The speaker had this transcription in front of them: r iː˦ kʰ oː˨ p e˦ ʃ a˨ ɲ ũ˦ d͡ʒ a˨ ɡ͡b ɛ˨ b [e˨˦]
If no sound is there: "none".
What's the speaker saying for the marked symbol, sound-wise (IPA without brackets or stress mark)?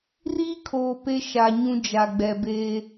e˦